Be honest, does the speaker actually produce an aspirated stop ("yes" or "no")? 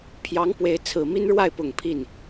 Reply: yes